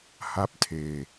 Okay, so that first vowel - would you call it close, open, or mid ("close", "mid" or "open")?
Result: open